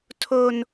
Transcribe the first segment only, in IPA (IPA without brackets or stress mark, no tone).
tʰ